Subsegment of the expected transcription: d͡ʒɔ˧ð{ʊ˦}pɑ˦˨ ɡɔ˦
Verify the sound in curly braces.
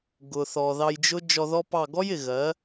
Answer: incorrect: ɔ˦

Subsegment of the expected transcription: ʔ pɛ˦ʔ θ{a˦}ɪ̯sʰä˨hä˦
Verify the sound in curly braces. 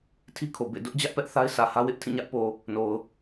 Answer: correct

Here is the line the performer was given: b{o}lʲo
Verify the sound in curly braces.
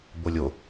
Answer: correct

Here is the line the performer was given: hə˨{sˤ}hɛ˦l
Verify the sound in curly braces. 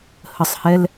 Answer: correct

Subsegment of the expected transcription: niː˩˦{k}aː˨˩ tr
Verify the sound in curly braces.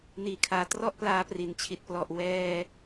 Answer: incorrect: kʰ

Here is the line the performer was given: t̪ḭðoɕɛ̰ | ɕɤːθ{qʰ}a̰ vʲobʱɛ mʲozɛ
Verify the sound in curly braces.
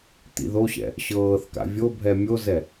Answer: incorrect: k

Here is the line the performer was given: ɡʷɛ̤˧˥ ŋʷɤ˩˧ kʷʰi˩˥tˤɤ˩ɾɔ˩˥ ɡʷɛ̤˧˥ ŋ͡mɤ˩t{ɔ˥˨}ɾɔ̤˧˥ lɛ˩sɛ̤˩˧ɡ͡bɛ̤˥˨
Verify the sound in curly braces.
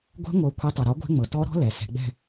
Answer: incorrect: ɔ˧˥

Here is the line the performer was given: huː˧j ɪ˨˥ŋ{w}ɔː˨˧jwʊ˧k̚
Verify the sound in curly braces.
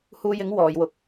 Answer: correct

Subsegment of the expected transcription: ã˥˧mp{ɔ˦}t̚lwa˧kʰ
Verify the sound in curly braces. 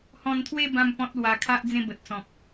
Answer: incorrect: ɔ̃˦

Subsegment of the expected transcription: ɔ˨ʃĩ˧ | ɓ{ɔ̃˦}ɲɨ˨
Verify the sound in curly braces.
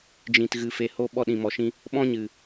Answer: correct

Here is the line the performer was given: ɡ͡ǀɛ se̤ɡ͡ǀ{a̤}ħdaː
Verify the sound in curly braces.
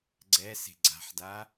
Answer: correct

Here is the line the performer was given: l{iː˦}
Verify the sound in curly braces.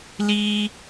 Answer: correct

